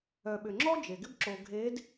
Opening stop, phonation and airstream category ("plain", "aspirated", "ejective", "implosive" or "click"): implosive